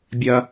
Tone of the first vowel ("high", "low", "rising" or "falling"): high